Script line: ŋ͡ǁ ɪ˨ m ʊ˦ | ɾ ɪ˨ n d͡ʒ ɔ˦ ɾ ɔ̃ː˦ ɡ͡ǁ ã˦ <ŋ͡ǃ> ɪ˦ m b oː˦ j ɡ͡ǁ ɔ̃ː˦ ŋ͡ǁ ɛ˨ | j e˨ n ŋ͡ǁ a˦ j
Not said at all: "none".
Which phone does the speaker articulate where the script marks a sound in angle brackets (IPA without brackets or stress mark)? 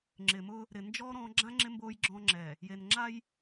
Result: ŋ͡ǁ